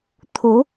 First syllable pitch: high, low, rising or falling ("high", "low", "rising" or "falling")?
rising